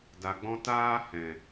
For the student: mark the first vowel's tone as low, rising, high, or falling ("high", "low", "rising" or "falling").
low